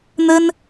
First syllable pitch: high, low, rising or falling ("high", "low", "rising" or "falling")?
high